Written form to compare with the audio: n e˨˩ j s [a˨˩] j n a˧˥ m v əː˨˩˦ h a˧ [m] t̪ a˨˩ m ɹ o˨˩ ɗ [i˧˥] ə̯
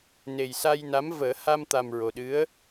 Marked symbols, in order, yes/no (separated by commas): no, yes, no